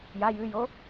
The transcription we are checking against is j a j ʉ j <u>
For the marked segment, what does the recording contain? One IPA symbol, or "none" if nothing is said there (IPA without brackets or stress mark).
o